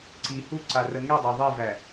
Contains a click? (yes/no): yes